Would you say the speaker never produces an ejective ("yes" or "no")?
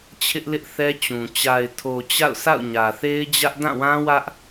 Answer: yes